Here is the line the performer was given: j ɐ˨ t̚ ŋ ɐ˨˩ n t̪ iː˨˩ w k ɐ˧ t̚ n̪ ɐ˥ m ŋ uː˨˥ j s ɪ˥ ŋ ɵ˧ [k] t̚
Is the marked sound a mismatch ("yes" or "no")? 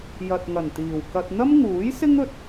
yes